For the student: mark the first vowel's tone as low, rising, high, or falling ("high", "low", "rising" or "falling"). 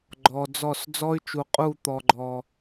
low